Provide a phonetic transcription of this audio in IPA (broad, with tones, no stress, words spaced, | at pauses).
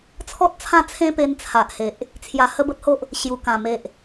t͡sʰɔ˦t̚t͡sʰã˦t͡sʰẽ˦pe˧n t͡sʰa˨ʔhe˨ʔ | t͡sʰja˧hə˦bə˦t̚ho˦ʔ | ɕju˨˩kã˨˩me˨ʔ